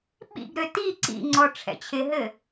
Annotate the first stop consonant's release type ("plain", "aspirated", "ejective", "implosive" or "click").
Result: implosive